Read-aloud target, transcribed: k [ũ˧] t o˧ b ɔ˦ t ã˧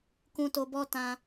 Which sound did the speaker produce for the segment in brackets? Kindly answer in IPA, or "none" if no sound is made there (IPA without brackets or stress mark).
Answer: ũ˧